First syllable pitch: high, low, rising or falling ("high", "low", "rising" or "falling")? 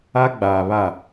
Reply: high